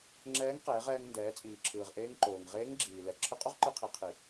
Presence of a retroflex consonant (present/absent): absent